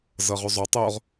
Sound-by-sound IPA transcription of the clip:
z ɤ ʁ ʉ zˤ o tˤ o ʁ

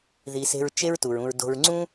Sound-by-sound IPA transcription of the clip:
ð i˩ s e̤˨ ɹ t͡ʃ e˦ ɹ t u˩ ɹ ũ˨ ɹ d o̤˨ ɹ ŋ͡ǀ ũ˥

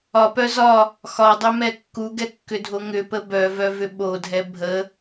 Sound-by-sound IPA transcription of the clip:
ɒ p œ z ɒ | x ɒ dˤ œ m ɛ kː u ɡ ɛ kː ʏ dʱ o ŋ ʏ p ə b œ v œ v ʏ ɓ o dʱ ɛ bʱ ə

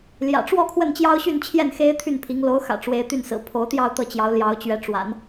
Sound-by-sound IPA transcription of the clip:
l j ä̰˨˩ ʈ͡ʂ w ɔ˥˧ kʰ w ə˥˩ n t͡ɕ j ɑ˥ ʊ̯ ɕ y˥˧ n t͡ɕʰ j ɛ˥˩ n x e˥ ɪ̯ t̪ʰ y˥˩ n pʰ i˧˥ ŋ l o˧˥ ʊ̯ x ä̰˨˩ ʈ͡ʂ w e˧˥ ɪ̯ t̪ y˥˩ n s ɹ̩˨˩ pʰ o˧˥ ʊ̯ t̪ j ɑ˥˧ ʊ̯ t̪ ɤ˥˩ t͡ɕ j ɑ˧˥ ʊ̯ l j ɑ˧˥ ʊ̯ t͡ɕ ɥ ɛ˧˥ ʈ͡ʂ w a̰˨˩˦ n

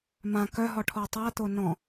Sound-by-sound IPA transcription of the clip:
m ã k œ ɦ ɔ ʈʰ ɔ tˤ a t̪ o n ɔ̃

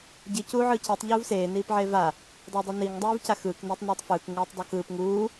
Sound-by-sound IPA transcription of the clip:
ɟ i c uː ʕ ɯː c i tˤ ʎ uː v s eː n iː p ʕ eː v a | dˤ e dˤ u n i ŋ dˤ uː v c a x ɯː k n iː tˤ n iː tˤ f ɯː k ŋ ɯː tˤ dˤ o k ɯː p ŋ uː

